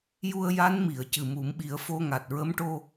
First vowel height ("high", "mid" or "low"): high